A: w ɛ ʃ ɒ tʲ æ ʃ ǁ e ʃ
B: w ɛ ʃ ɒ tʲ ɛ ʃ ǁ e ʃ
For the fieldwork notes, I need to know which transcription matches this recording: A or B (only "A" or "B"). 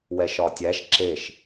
A